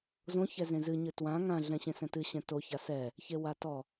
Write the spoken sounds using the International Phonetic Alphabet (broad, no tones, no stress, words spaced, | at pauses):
zõçɛzẽ zɨɲɨ twã ŋã ɮɛ̃ɕẽsɛ̃tɨ ɕɛ̃toça sɛ | çewatɔ